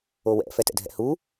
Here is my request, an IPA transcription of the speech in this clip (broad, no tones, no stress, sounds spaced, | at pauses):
o w ɛ̰ f ɛ t ɛ̰ dʱ ɛ̰ h u